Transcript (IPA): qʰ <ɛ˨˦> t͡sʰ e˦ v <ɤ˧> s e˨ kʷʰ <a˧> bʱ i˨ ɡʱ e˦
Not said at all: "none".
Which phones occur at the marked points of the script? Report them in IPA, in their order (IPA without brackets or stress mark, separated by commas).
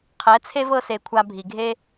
ɛ˨˦, ɤ˧, a˧